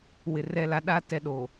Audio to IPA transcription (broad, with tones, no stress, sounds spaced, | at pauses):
w ɪ˨ r ɛ˦ l a˦ ɗ a˦ t ɛ˦ ɗ o˨